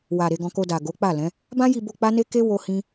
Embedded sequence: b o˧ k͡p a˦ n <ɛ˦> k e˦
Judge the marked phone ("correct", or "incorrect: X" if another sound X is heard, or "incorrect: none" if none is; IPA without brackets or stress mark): incorrect: e˦